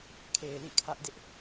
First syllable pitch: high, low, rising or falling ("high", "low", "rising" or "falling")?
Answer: low